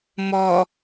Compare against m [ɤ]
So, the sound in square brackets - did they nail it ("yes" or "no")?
no